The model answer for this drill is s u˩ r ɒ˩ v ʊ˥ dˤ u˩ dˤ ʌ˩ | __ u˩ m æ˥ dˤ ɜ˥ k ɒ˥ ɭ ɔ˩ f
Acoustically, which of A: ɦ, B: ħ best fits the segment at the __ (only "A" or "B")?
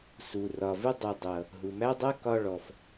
A